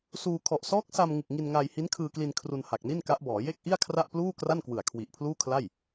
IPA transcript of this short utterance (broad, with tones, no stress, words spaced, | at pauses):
suː˧ kʰɔ˨˩ʔsɔː˦˥k̚sa˧mŋɯ˨˩k̚ ŋi˧nŋaː˧j hi˦˥nkʰɯː˧kli˧n kʰru˧nha˨˩k̚ni˥˩n ka˦˥ʔbɔː˩˦ je˥˩k̚ʔi˥˩a̯ kʰra˥˩ʔpluː˥˩kra˥˩nkwɯ˨˩a̯ kʰwi˨˩ʔpʰluː˥˩kʰla˥˩j